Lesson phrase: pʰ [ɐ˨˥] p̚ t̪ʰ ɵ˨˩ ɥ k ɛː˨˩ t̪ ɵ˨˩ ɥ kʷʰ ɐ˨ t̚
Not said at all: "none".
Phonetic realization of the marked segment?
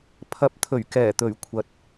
ɐ˨˥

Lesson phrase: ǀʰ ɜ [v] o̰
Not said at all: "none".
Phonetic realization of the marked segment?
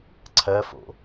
f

